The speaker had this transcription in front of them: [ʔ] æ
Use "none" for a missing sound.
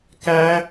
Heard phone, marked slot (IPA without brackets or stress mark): k